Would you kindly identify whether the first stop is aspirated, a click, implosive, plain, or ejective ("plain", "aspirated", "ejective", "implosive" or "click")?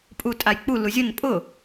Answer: ejective